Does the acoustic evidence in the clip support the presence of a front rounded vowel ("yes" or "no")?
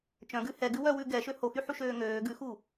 yes